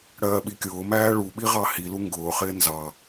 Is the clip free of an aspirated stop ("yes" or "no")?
yes